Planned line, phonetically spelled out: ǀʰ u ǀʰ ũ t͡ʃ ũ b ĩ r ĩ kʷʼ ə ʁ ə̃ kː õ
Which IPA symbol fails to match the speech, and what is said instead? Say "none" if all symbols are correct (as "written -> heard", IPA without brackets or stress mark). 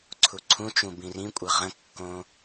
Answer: none